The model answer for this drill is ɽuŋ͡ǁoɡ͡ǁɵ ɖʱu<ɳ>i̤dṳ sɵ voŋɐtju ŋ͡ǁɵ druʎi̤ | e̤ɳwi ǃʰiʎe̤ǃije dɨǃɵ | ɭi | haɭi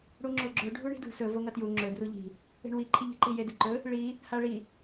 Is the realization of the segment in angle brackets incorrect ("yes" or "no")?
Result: no